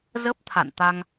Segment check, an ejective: absent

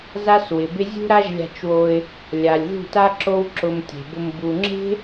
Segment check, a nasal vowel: absent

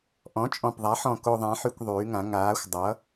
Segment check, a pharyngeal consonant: present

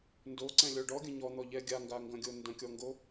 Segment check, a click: present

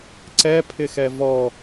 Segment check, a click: present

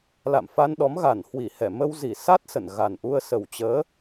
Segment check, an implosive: present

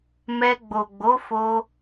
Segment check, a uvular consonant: absent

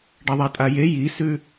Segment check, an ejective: present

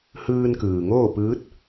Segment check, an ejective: absent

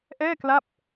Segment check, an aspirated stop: absent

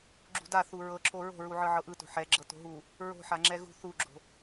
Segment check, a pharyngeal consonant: present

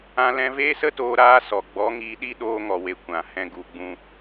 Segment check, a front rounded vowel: absent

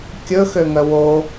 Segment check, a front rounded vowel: present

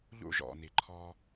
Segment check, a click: present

